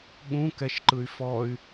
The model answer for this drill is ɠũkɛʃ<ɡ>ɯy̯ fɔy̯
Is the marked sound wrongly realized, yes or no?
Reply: yes